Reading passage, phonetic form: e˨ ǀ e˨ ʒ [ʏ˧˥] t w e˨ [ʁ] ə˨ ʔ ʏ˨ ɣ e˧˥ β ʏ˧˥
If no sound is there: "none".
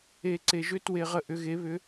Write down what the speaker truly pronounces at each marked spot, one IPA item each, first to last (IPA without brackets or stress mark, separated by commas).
ʏ˧˥, ʁ